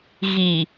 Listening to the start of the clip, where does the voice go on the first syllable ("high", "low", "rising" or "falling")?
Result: low